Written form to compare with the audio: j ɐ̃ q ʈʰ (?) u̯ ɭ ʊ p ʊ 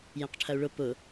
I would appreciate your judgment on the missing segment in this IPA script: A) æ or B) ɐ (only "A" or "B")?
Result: B